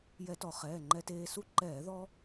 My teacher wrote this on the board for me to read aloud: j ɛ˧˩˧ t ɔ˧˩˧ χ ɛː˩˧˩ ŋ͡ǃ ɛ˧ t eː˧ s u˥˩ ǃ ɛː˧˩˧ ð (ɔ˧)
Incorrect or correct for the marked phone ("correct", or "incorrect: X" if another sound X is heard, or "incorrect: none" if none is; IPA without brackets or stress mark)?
correct